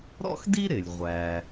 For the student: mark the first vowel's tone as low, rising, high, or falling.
high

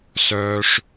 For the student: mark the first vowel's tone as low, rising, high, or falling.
high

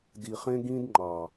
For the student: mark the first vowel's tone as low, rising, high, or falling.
low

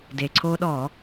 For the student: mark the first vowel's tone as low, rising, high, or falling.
low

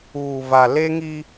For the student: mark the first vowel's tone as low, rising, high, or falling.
low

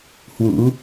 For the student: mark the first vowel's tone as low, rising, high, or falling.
rising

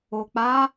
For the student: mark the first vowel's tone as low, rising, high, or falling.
low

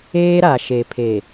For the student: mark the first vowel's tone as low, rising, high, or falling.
high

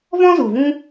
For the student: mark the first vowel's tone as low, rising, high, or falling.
high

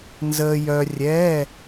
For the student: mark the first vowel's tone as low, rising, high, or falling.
low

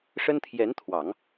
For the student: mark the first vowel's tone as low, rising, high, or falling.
high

